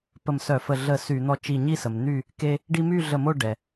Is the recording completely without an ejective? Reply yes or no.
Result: yes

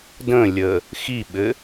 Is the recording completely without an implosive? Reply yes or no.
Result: no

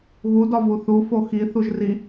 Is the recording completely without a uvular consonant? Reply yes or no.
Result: yes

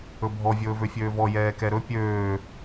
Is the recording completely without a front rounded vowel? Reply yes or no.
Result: no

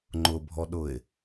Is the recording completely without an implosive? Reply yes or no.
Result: no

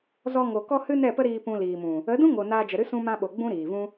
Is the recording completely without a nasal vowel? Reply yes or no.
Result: no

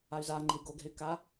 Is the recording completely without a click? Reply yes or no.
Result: no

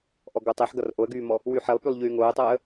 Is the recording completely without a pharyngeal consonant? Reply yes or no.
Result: no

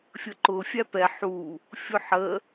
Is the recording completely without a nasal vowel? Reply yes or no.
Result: yes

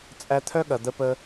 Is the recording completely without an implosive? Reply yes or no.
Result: no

